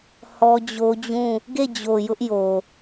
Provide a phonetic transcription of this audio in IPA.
h ɔ˦ d͡ʑ o˦ d͡ʑ ũ˦˨ | ɡ e˦˨ d͡ʑ o˨ j ʊ˦ ʔ j o˨

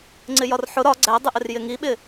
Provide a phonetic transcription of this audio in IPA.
ŋ͡ǀ ɪ j ɒ r ħ ʊ ɾ ɒ ɡ͡ǀ æ dˤ ɪ ʔ ɪ r j ɪ ŋ i ɓ ɪ

